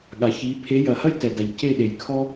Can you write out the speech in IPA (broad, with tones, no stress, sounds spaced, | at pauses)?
ɠ a˨ ç i˨˦ pʰ e˨˦ j ɐ˨ h ɐ˦ j t ɛ˨ d a˨ ʎ c e˦˨ ɗ e˨ j kʰ ɔ˦